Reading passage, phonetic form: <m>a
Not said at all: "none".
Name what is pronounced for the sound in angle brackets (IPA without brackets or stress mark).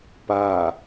p